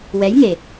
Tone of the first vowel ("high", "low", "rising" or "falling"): rising